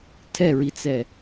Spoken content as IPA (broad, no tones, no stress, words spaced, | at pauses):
tʰɛɹit͡sɛ